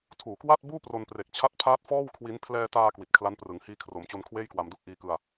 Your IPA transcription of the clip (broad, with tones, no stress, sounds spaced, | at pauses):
tʰ uː˨˩ k w a˥˩ t̚ b uː˥˩ p r o˧ n p r e˨˩ k̚ t͡ɕʰ a˦˥ t̚ pʰ aː˦˥ t̚ f ɔː˥˩ w kʰ w i˦˥ n pʰ l ɛː˧ t aː˧ k w i˨˩ t̚ kʰ l a˦˥ n p r ɯ˩˦ ŋ h iː˧ kʰ r o˩˦ m t͡ɕ o˧ n kʰ w eː˥˩ j k w a˧ m d u˥˩ k̚ ʔ iː˧ k ɯ˧ a̯